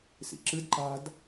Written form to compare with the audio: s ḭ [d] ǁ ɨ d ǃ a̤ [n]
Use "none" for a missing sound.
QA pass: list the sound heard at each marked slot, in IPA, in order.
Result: none, d

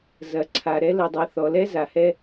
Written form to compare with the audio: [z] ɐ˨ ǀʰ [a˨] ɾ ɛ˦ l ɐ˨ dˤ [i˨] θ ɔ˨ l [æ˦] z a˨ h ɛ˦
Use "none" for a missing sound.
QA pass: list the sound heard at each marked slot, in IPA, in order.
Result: z, a˨, i˨, ɛ˦

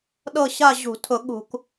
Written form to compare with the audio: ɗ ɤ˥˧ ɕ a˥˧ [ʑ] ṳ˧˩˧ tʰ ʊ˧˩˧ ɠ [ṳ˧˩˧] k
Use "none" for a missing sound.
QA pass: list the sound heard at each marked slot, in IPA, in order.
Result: ʑ, ṳ˧˩˧

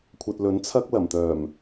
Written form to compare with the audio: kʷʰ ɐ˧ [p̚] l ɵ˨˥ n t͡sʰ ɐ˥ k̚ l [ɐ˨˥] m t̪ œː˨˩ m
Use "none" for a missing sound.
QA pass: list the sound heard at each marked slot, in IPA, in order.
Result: t̚, ɐ˨˩

